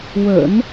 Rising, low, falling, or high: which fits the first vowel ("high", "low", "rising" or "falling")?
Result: low